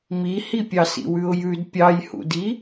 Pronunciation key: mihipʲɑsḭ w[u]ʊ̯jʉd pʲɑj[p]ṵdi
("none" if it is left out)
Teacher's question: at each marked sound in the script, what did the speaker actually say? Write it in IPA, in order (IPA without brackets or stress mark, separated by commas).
ʉ, h